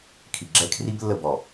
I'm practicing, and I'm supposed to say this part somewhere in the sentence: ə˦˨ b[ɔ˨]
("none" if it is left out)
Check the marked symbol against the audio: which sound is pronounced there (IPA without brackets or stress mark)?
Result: ɔ˨